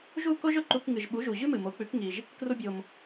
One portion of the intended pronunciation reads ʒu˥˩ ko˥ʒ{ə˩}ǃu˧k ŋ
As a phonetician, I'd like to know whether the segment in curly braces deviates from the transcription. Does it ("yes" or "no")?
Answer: yes